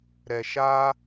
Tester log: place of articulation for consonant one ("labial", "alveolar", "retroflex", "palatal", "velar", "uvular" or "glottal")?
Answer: alveolar